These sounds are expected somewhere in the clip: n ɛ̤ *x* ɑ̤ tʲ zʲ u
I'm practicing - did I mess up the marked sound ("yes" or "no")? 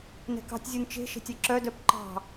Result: yes